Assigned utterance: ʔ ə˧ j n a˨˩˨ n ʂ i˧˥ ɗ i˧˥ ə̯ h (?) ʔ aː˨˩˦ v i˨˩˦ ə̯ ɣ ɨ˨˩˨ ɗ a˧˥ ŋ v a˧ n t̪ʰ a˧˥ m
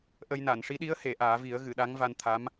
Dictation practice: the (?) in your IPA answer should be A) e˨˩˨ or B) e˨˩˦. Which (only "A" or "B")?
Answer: A